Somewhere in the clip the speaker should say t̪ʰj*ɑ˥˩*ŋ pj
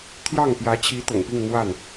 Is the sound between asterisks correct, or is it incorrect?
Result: correct